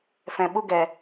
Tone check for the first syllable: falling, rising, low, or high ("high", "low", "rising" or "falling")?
low